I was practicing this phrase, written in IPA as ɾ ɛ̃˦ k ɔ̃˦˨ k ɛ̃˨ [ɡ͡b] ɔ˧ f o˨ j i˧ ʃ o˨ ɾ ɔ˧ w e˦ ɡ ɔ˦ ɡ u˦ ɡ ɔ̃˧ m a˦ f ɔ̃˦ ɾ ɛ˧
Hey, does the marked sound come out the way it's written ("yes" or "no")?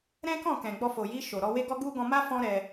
yes